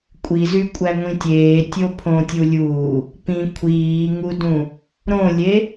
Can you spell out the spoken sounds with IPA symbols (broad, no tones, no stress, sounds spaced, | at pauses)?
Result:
kʷʼ i z y kʷʼ æ ŋʷ ĩ tʲ eː tʲ o pʰ õ tʲ u lʲ uː | p ĩ kʷʰ iː ŋ u d ũ | ɾ õ lʲ e